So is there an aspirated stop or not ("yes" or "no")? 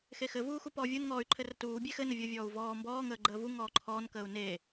yes